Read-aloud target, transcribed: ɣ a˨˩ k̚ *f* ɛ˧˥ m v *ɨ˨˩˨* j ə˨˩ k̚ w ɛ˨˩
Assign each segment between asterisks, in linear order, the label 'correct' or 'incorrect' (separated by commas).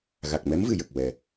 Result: incorrect, correct